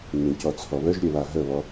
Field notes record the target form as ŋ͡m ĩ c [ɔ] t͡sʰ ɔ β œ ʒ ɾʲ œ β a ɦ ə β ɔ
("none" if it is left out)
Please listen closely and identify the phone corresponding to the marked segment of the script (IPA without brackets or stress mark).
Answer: ɔ